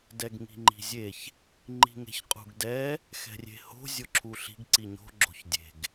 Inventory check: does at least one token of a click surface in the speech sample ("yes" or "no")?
yes